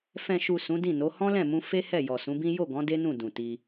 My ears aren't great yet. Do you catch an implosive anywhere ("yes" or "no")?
no